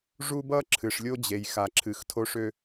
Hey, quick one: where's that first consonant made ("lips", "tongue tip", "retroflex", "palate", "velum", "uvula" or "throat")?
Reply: retroflex